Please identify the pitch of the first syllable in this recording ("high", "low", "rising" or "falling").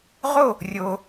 falling